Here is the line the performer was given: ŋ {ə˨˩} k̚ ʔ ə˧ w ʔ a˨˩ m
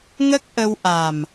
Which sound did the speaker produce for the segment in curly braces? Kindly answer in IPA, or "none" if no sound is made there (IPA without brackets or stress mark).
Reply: ə˦˥